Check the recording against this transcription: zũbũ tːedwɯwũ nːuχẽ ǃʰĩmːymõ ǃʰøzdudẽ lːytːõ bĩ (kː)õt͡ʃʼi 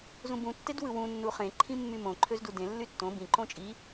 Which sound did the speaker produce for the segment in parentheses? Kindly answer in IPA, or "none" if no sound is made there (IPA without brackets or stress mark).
ǃ